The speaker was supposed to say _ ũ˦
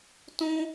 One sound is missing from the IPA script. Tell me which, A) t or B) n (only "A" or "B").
A